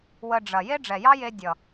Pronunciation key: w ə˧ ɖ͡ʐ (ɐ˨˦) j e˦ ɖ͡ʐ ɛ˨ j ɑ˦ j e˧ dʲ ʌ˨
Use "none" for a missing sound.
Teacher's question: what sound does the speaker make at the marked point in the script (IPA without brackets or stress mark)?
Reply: ɐ˨